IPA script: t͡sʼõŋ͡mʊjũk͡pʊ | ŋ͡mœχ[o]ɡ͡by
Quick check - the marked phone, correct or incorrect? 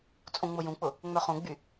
incorrect